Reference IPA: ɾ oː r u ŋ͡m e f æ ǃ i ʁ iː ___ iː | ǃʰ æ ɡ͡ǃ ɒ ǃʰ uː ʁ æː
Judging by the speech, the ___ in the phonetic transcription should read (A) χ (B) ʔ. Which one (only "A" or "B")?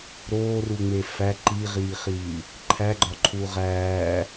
A